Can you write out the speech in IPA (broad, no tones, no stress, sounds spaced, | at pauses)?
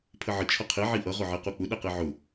pʰ ə ʕ ə t͡ʃʰ ʌ qʰ i ʕ i ʔ ʌ ʁ ʊ ʕ i q u k͡p ʊ ɗ ɛ q i ʕ ʊ